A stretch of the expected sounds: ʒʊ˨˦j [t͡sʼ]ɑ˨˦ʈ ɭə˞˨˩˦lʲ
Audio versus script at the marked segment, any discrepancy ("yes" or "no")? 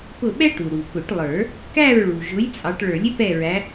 no